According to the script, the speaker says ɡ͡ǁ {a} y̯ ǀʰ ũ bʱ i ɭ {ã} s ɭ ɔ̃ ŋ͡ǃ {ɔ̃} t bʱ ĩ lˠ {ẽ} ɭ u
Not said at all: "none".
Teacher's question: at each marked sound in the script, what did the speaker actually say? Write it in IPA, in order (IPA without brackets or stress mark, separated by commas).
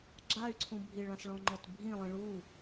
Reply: a, ã, ɔ, ĩ